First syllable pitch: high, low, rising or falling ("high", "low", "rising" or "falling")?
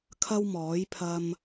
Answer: high